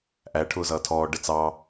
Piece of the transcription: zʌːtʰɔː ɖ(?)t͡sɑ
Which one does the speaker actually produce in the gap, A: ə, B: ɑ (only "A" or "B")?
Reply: A